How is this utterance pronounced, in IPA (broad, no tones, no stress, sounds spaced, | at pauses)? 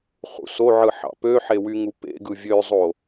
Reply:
χ ṵ s o ʕ ɯ ħ ɑ̰ p ø ħ e w y ŋ u p ḛ ɡ ɯ vʲ ø zˤ o